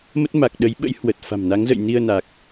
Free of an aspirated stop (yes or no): yes